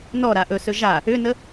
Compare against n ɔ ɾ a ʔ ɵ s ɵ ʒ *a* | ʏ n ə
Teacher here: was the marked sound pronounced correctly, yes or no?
yes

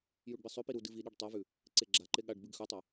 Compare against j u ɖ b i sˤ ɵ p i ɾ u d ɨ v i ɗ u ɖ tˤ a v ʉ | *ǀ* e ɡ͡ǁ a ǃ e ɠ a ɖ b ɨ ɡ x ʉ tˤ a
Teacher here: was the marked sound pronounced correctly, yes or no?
yes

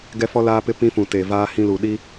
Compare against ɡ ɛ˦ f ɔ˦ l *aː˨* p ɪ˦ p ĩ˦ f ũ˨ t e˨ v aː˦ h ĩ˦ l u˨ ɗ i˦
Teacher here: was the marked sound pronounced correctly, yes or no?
no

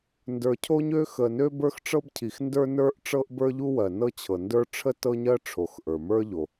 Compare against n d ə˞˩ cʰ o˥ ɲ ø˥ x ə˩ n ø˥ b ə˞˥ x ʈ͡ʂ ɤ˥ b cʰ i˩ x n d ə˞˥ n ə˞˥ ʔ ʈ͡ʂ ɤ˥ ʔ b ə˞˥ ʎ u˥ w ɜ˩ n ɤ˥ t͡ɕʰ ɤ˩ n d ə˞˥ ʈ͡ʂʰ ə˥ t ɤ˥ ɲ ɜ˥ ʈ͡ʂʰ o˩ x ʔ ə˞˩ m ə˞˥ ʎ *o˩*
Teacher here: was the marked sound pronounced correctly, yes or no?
yes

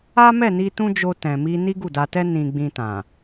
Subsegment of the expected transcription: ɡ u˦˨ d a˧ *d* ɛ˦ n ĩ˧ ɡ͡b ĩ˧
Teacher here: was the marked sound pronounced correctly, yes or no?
no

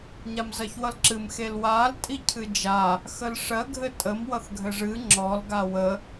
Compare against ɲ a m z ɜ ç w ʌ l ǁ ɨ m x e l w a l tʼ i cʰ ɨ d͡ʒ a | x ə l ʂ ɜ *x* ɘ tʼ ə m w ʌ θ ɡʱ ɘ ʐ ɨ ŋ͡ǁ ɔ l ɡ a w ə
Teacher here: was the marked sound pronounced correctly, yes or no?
no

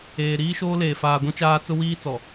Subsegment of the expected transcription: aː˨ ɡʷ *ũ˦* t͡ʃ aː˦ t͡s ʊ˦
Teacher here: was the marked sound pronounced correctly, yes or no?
yes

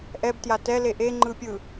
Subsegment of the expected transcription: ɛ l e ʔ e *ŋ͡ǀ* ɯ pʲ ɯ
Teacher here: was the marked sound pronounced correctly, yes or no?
no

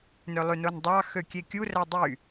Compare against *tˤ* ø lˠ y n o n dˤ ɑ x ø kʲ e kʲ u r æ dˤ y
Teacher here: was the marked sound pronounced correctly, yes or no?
no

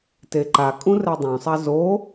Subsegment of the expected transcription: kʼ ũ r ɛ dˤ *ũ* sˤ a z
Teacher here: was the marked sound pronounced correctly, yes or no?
no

